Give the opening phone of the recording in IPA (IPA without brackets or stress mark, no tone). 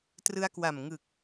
t